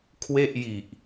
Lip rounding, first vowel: unrounded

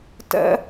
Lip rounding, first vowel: unrounded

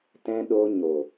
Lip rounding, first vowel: unrounded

